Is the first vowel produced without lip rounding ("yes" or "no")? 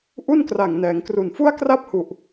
no